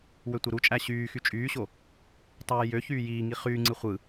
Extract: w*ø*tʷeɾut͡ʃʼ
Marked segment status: correct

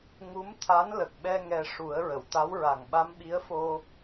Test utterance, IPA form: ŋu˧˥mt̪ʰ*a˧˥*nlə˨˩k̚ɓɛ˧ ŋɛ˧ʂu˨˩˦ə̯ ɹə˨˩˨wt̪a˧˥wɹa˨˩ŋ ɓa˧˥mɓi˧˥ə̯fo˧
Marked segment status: correct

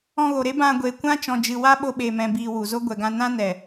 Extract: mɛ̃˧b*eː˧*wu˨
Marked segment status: incorrect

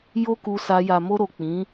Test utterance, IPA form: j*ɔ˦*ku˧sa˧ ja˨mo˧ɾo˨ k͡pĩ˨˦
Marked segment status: incorrect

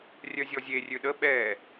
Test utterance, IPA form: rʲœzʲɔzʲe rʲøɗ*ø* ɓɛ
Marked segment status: incorrect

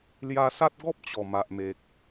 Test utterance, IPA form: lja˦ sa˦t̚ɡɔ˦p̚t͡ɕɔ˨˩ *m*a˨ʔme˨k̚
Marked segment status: correct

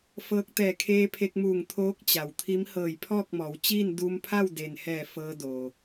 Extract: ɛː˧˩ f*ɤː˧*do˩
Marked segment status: correct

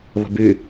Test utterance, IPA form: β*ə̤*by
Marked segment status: correct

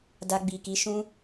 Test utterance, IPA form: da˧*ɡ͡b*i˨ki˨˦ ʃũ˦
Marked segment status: correct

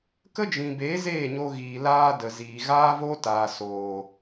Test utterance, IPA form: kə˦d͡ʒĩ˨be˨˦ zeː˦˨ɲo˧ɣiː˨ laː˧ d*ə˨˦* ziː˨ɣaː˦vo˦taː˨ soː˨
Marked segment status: incorrect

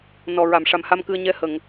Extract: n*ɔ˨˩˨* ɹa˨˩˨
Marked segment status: incorrect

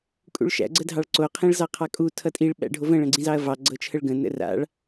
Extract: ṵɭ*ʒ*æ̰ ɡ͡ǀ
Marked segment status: incorrect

